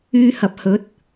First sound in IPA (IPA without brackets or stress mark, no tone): yː